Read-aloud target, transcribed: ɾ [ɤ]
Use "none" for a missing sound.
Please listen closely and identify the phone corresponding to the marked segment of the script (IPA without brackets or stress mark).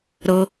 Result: ɤ